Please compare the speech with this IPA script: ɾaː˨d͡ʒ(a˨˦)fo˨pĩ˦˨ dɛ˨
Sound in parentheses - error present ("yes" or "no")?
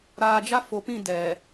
yes